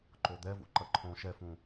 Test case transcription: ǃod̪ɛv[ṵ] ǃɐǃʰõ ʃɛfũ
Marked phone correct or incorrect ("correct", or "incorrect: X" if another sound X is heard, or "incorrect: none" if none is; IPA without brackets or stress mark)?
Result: correct